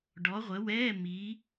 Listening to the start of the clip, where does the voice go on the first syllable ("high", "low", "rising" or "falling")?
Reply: rising